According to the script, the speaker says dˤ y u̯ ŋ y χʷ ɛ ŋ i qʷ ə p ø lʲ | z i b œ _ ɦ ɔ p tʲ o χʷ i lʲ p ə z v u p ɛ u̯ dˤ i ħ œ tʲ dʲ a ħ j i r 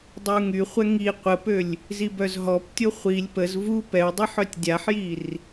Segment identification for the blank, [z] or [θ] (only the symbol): z